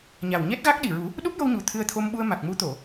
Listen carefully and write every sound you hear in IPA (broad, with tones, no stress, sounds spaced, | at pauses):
ɲ a˨˩ w ɲ ɛ˦˥ t̚ ɣ a˦˥ k̚ ɗ i˨˩ ɹ u˨˩˦ | ɗ u˦˥ p̚ j o˧ w ɲ u˨˩ t̪ʰ ɨ˧ ə̯ t̪ʰ o˧ m ɓ u˧ ə̯ m a˨˩ k̚ m u˧˥ t̪ o˨˩˨